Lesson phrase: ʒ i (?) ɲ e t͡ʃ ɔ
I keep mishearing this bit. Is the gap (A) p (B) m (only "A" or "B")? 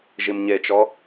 B